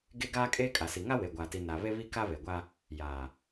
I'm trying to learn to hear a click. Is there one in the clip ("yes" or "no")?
no